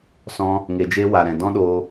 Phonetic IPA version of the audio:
s ɔ̃˧ | ŋ e˨ d͡ʒ e˧ w a˨ ɾ ɛ̃˨ d ɔ̃˦ ɗ oː˧

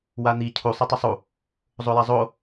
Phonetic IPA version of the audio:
w a n̪ i cʰ u sˤ ɛ tˤ ʌ sˤ u | zˤ o j a zˤ o

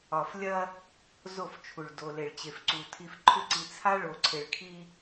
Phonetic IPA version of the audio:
ɒ˨ f lʲ ɐ˦ | z o˦˨ f t͡ʃʰ u˨ ɭ d o˨ l e˨ ɭ t͡ɕ e˨ f ǀ u˨ tʰ i˨ f ǃʰ ʏ˦˨ ǀ i˨ t͡sʰ a˦ ɭ o˨ ǀʰ e˨ ɭ kʰ i˦

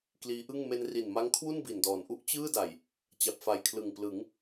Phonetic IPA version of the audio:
k l iː˦˥ ʔ ɯ˥˩ ŋ m e˧ n r i˨˩ n m a˦˥ ŋ kʰ w u˥˩ n b i˨˩ n d ɔː˩˦ n ʔ u˥˩ ʔ t͡ɕ ɯː˥˩ d a˨˩ j | t͡ɕ a˨˩ p̚ f a˨˩ j kʰ l ɯ˨˩ ŋ p l ɯ˩˦ ŋ

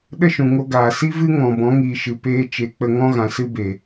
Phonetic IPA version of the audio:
ɗ ə˦ ʃ ũ˨ ŋ o˧ ɡ aː˨ s i˦ v ɨ˦ ŋ ɔ̃˨ b ɔ̃˨˦ ŋ iː˨ ʃ ɨ˨ p eː˧ t͡ʃ e˨˦ k͡p ə˧ ŋ ɔ̃˦ ɣ ã˨ s ɨ˦ b e˨

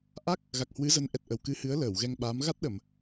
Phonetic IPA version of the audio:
ʔ a˦˥ k̚ | ɣ a˨˩ k̚ h w ɨ˨˦ z ə˨˦ n ʔ ɛ˨˩ t̚ ʔ ə˨˩ w k ɨ˨˦ h ɨ˨˦ ə̯ l əː˧˩ w ɣ ɛ˧ ŋ ɓ aː˨˦ m ɣ a˦˥ t̚ ɗ ə˧˩˨ m

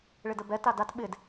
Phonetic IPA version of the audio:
ɭ ɪ d ə b ɛ t a d a t ɓ ɪ d

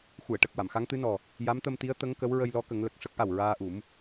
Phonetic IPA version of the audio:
x u˨˩˨ ə̯ ʈ ə˨˩ k̚ w a˨˩˨ m x a˧˥ ŋ t̪ ɨ˧˥ n ɔ˨˩ | j a˧˥ m t̪ ə˧ m t̪ i˧˥ ə̯ t̪ ə˧˥ ŋ k ə˧˥ w ɹ ə˧ j l ɔ˧˥ k ə˨˩˦ ŋ l ə˨˩ k̚ ʂ ə˦˥ k̚ ʔ a˨˩ w ɹ aː˧ ʔ u˨˩˦ m

